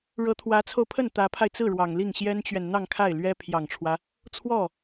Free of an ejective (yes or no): yes